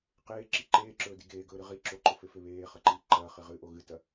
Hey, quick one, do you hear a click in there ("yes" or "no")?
yes